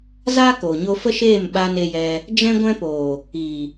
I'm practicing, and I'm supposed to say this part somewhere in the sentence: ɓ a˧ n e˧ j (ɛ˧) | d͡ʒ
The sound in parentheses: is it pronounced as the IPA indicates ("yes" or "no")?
yes